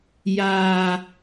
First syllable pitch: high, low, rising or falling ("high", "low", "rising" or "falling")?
low